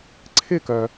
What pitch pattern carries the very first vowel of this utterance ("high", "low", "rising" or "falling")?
falling